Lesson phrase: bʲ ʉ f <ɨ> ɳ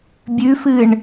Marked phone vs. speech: correct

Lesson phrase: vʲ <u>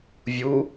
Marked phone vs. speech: correct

